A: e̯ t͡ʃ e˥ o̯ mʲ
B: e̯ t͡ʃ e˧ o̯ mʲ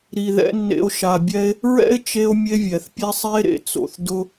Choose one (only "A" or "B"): B